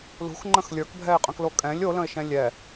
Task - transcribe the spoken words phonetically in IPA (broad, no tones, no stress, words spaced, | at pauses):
lṳxŋ͡ǃə̃x lʲə˞kbʱɛɪ̯qʼə̃klo kʼɛ̃lʲ olə̃ɪ̯ʃɛ̃ lʲɛ